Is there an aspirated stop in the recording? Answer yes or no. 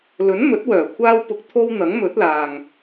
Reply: yes